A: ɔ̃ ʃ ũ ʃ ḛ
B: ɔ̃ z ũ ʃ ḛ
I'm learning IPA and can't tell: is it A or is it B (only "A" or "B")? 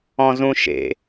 B